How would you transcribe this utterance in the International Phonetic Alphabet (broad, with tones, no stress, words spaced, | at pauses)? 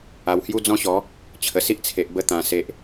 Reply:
a˨˩whju˦d͡zɔ̃˥˧ɕɔ˨˦ | t͡ɕʰə˨˩si˦ʔt͡sʰe˨ʔ bə˧t̪ã˨˩se˨ʔ